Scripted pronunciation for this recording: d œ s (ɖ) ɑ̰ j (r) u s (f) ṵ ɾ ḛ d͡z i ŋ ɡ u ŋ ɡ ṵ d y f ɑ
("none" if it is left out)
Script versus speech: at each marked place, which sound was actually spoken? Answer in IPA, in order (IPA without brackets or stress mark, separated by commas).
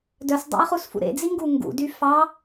dˤ, χ, f